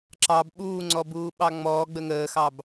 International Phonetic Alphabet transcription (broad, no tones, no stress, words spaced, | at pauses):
ǁɑb ɓuːŋ͡ǀɔbuː ɓɑŋ͡mɔː ɡ͡bəŋəːxɑb